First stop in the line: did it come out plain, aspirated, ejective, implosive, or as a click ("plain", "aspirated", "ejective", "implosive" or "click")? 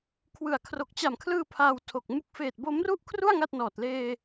aspirated